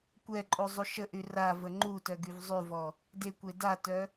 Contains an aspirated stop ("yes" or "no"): no